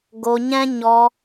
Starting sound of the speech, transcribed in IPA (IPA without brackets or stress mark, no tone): ɡ